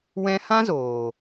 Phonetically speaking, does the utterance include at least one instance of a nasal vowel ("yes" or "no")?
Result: yes